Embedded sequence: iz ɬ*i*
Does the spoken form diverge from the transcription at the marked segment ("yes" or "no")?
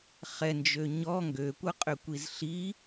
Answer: no